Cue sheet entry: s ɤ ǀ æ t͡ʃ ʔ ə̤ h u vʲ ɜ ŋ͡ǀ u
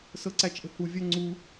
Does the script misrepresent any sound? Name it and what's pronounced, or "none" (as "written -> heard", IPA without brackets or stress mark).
none